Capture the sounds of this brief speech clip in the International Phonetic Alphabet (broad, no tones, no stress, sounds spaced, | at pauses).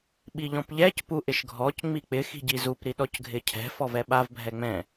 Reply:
ɓ i ʎ ɔ̃ p ʎ ɛ c p u ʔ ɪ ʃ ɡʱ ɔ c ŋ͡m i k͡p ɪ x i̤ ɟ i z u p ɾ i ɗ ɔ c ɡʱ ɪ cʰ ɛ̤ f ɔ v ɛ ɓ a v bʱ ɛ ŋ͡m ɛ̃